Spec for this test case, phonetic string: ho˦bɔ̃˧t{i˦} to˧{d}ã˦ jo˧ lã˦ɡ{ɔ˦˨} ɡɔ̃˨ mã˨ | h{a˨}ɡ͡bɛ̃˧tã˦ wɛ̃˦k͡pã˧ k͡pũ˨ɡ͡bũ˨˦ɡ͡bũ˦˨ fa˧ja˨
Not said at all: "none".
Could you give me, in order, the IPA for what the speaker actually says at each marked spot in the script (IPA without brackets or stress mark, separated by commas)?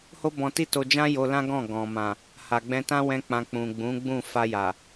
i˦, d͡ʒ, ɔ̃˦˨, a˨